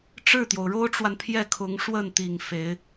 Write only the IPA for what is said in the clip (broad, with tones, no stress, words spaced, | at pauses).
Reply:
ʈ͡ʂɻ̩˥˩t̪jo˩ʊ̯ɻo˥ʊ̯ʈ͡ʂwa˨n pʰjɛ˥˩kʰʊ˧˥ŋʂwə˥˩nt̪i˨˩ŋ fe˧˥ɪ̯